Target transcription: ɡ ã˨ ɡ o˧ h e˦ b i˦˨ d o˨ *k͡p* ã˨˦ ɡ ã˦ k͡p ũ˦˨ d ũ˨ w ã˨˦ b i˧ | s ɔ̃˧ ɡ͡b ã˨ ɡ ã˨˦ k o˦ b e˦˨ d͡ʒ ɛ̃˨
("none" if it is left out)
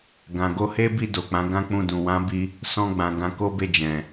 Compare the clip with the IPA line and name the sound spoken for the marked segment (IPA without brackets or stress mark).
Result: k͡p